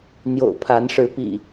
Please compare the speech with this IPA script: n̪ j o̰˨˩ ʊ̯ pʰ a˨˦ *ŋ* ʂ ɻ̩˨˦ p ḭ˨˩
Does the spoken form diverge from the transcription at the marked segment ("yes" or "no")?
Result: yes